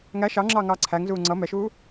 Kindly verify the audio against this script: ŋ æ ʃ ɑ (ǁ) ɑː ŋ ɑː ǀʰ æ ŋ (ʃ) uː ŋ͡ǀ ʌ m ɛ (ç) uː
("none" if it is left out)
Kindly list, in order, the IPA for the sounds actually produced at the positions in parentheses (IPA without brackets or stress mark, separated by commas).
ŋ͡ǁ, z, ʃ